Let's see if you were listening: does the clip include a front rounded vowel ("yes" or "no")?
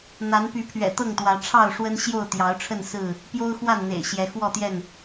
yes